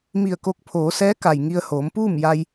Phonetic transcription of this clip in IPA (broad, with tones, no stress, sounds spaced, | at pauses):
m i˧˩ ə̯ k o˧˥ k̚ pʰ oː˩˧ s ɛː˧˥ k a˩ j ŋ i˧ ə̯ h oː˩˧ m p uː˥˨ m j a˧ j